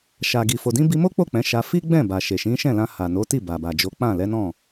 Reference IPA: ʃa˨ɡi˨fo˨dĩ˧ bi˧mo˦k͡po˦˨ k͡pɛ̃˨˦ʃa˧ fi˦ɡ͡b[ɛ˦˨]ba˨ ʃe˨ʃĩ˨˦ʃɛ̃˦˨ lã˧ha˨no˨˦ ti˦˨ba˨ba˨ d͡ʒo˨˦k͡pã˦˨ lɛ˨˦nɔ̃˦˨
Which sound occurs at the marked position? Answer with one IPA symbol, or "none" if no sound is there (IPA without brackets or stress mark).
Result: ɛ̃˦˨